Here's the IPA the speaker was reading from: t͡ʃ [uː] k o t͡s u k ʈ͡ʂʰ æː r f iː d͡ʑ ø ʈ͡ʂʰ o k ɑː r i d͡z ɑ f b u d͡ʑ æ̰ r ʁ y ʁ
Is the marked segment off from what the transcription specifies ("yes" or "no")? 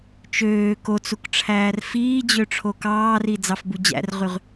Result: yes